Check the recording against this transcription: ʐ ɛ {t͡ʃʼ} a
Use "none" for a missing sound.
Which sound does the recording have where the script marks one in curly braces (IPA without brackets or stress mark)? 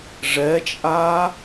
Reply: t͡ʃʼ